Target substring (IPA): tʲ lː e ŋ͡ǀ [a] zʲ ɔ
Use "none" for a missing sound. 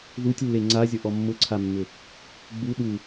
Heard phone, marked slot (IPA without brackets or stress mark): a